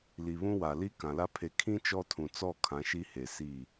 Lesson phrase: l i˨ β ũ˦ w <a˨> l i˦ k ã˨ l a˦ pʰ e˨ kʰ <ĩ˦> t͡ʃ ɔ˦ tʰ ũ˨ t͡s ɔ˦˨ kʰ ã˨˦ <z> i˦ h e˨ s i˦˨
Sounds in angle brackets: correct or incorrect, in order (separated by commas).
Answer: correct, correct, incorrect